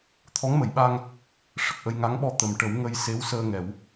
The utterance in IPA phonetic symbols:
t̪ʰ ɔ˧˥ ŋ m ə˨˩˨ j ɓ a˧ ŋ | ʂ ə˨˩ k̚ ʔ ə˧ j ŋ a˧˥ ŋ ɓ ɔ˧ t̪ ə˨˩˨ m ʈ ə˨˩˦ w ŋ ə˧ j s e˧˥ w s əː˧ ŋ ɛ˨˩˦ w

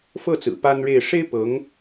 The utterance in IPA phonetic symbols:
f ɤ˥˩ t͡s ɹ̩˨˩ p a˥ n ɻ e˥˩ ɪ̯ ʂ e˥ ɪ̯ p ɤ˧˥ ŋ

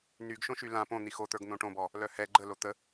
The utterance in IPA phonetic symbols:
n y ɡ ʃ õ ʃ y l ã p õ n̪ i x o t̪ ə˞ ɡ n̪ õ ʈ õ b ɔ | l œ h ɛ ɡ͡ǃ ə l o t̪ ə

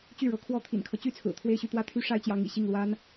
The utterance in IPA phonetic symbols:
t͡ɕ y˥˩ ɻ ɤ˧˥ kʰ w ɔ˥˩ t̪ʰ ḭ˨˩ n kʰ ɤ˦ t͡ɕ y˥ t͡sʰ ɹ̩˨˩ t̪ʰ w e˥˧ ɪ̯ ɕ y˥˧ t̪ w ä˥˩ t̪ʰ y˥ ʂ a˥ ɪ̯ t͡ɕ j ɑ˧˥ ŋ ḭ˨˩ ɕ i˥˩ ŋ l w a˥ n

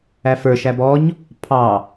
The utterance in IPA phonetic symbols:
æ f ə˞ ʃ æ b ɔ ɲ | pʰ ɑ

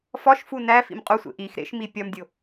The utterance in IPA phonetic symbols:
f ɒ ʃ f u n æ f ḭ m qʼ u sʷ ḛ ʔ i x ɾ ḛ ʃ m i pʲ ɒ m dʲ o

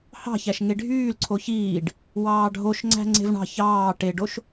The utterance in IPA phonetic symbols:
h ɑ̤ ç æ ʃ ŋ e ɖʱ yː l ǀʰ o ç iː ɖ | w ɑː ɖʱ o ʃ ŋ͡ǀ æ̤ ŋ͡ǀ e̤ v ɳ ɑ̤ ç ɑː ʈ e ɖ o ʃ

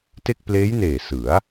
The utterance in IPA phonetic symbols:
t e˥˩ k̚ p l eː˦˥ j n eː˨˩ s ɯ˩˦ a̯

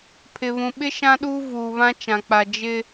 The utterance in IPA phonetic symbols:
pʰ ɪ˨ β ũ˨ ɓ ɪ˦ ʃ ã˦ ɗ uː˦ v uː˨ β ã˦ t͡ʃ ã˨ k͡p a˨ d͡ʒ ɪ˦

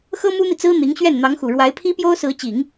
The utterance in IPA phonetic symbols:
x ɤ˥ m u˥ n̪ i˨ t͡s ɹ̩˥ n̪ i˧˥ ŋ ɕ ɥ ɛ˥˩ n n̪ ɑ˧˥ ŋ x u˨˩ ɻ w a˧˥ ɪ̯ pʰ i˥ p j o˥ ʊ̯ s ɹ̩˧˥ t͡ɕ i˨˩˦ ŋ

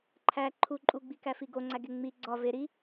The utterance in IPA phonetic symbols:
ǃʰ æ ǃʰ u ǃʼ u ɡ͡b i k æ f i ɡ o ŋ͡ǀ æ ɡ e ŋ͡m i ɡ͡ǀ ɒ v e ɾ i

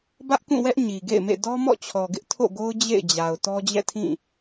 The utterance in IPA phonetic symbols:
b ä˦ ʔ k ũ˦˨ w ɛ˦ ʔ ɲ i˨ ɡ ḛ˦˨ ɪ̯ m ḛ˦˨ d ɔ˦ m ɔ̰˦˨ t͡ɕʰ ɔ˨ ɡ ɪ˦ ʔ tʰ o̰˦˨ ɡ o˦ ʊ̯ d͡ʑ ḛ˦˨ ɪ̯ d͡ʑ a˨ ʊ̯ t ɔ˦ d͡ʑ ɛ̰˦˨ tʰ ĩ˦˨

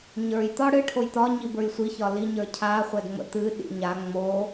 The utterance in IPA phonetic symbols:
ɲ ə˞ j t̪ ɒ ɽ ɨ ʈʰ o j t̪ ɒ ɲ i b ə˞ j sʷ i ç ɒ l i ɲ ə˞ cʰ a χʷ ɛ d ŋ͡m ə̰ t̪ ɨ ɗ ḭ ɲ a ŋ͡m o

